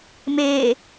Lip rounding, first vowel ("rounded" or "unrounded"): unrounded